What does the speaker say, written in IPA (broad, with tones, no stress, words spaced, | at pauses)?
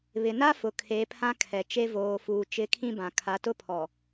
βɪ˨na˦fʊ˨ kʰe˨˦pʰã˦kʰɛ˨ t͡ʃe˦ voː˨fuː˨ t͡ʃɪ˨˦ kʰĩ˦bã˨ kʰa˨˦tʊ˦ pʰɔ˨